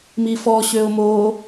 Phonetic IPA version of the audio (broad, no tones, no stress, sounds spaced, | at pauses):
m i f ɔ ɕ ø ʊ̯ m o